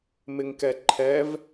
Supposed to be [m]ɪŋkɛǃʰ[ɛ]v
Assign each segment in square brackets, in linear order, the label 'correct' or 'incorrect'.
correct, correct

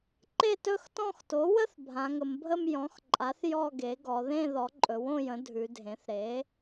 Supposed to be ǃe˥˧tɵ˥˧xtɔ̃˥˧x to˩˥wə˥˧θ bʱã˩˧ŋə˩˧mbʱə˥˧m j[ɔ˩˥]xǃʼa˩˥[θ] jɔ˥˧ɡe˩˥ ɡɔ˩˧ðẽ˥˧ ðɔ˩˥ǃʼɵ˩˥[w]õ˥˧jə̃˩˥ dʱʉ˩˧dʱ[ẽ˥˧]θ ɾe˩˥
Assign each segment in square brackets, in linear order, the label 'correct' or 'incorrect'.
incorrect: ɔ̃˩˥, correct, correct, incorrect: ẽ˩˥

